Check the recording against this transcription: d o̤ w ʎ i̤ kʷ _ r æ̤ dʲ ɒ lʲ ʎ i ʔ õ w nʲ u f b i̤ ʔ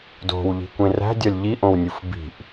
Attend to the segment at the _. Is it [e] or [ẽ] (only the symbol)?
ẽ